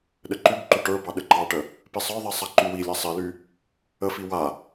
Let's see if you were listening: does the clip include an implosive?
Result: yes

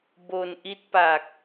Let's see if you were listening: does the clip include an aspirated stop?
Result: no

